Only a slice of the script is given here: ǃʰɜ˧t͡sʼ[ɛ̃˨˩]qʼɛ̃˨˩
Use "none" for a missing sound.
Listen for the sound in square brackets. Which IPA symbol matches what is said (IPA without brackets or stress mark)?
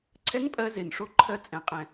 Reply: ɛ̃˨˩